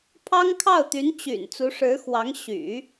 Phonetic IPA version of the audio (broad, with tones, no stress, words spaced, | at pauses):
pʰɑ˥ŋkʰɑ˥˩ʊ̯t̪y˧˥nt͡ɕy̰˨˩n t͡su˧˥ʂɻ̩˧˥xwɑ˧˥ŋ ɕy̰˨˩˦